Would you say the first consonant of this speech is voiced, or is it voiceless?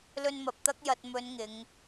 voiced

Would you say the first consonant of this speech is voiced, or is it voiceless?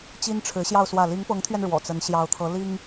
voiceless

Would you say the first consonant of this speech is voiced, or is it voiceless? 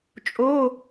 voiceless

